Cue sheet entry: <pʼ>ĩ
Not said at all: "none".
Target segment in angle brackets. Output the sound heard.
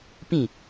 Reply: p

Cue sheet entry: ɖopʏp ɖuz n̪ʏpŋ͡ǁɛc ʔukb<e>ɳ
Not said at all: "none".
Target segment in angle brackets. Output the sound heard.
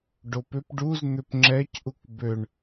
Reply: ø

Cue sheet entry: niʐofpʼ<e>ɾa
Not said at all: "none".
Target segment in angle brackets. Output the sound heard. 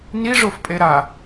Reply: e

